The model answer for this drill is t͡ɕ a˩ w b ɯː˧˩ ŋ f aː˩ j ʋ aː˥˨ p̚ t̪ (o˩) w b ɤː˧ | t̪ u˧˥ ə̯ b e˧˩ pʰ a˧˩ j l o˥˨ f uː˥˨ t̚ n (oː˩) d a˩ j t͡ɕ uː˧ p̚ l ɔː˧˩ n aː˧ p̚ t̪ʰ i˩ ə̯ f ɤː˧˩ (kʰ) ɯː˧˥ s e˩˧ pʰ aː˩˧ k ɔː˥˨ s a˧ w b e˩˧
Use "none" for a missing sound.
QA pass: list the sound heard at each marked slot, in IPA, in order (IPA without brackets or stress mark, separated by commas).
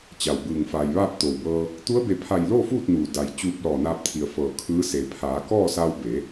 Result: o˩, uː˩, kʰ